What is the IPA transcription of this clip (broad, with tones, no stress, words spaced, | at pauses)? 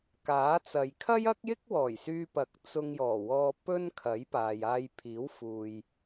kaː˨˥t͡sɐ˨j kʰɐ˥jɐ˥k̚jɪ˥k̚wɔː˨˩j syː˧pɐ˨˥k̚ t͡sʊ˧ŋjɔː˨˩wɔː˧ pɵ˥nkʰɐ˨˥jpaː˨j aː˧jpʰiː˨˥wfuː˨j